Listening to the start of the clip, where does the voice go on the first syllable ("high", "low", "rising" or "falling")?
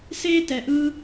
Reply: high